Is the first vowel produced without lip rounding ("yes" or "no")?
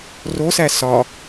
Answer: no